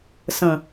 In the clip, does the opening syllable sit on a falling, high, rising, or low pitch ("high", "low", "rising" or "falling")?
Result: low